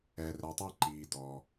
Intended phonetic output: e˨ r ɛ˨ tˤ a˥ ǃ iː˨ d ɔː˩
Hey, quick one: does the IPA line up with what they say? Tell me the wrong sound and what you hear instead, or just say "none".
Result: e˨ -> ɛ˨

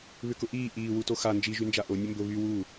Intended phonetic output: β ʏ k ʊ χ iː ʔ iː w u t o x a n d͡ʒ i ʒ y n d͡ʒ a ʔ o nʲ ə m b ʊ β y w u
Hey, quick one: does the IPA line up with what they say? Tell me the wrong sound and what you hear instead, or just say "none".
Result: χ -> ʔ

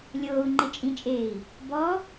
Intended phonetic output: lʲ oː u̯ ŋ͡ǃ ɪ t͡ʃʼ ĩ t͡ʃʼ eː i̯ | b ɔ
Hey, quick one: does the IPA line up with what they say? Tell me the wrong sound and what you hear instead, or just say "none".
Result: none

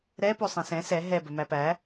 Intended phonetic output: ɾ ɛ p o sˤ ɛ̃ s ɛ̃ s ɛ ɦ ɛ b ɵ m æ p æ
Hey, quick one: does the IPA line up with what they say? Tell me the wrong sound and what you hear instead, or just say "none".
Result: none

